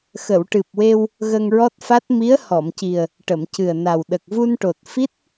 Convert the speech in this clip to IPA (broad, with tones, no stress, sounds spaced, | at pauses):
x ə˨˩˨ w ʈ ɨ˨˩ p̚ w e˧ w | ɣ ə˧ ŋ ɹ ɔ˦˥ t̚ f a˦˥ t̚ m i˧˥ ə̯ h ɔ˨˩˨ m c i˨˩ ə̯ | ʈ ə˨˩˨ m c ɨ˨˩ ə̯ n a˨˩ w ɗ ə˨˩ k̚ v u˧ n ʈ o˨˩ t̚ f i˦˥ t̚